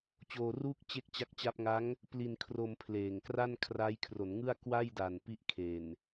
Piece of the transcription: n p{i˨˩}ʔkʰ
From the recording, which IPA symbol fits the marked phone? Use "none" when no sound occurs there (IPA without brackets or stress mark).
i˦˥